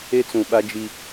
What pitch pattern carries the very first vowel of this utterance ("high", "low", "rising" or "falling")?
high